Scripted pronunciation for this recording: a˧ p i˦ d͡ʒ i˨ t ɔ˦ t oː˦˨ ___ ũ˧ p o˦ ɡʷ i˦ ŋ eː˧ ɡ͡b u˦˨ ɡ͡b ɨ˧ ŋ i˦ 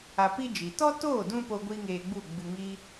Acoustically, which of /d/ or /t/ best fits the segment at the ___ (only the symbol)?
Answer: d